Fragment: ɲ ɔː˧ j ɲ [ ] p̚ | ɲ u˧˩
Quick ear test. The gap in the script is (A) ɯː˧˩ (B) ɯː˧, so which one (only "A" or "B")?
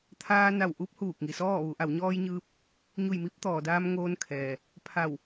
B